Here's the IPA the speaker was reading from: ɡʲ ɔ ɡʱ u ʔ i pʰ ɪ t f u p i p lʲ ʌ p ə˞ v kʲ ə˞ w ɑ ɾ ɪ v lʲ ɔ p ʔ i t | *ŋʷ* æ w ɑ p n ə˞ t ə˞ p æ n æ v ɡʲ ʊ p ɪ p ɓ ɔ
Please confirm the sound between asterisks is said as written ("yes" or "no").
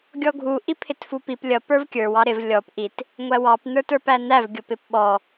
yes